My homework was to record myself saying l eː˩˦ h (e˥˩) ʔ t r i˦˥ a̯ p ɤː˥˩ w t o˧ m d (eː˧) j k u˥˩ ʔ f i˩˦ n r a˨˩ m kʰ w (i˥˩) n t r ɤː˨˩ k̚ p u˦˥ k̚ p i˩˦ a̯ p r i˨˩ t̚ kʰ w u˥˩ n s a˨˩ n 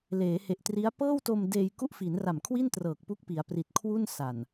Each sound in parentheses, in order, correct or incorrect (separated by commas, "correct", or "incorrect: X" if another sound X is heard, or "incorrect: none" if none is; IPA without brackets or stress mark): incorrect: e˨˩, correct, correct